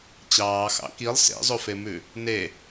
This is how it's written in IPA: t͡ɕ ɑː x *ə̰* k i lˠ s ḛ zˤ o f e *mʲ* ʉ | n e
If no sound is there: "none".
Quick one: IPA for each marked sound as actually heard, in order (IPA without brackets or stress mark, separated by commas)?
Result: ɑ̰, m